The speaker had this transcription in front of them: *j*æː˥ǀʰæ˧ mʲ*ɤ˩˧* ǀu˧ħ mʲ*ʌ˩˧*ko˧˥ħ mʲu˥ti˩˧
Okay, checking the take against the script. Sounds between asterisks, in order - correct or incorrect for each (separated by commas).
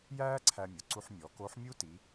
correct, incorrect, incorrect